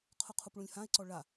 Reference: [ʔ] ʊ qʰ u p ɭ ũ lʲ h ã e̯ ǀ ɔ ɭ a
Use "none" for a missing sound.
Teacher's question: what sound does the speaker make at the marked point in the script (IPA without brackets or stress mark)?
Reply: qʰ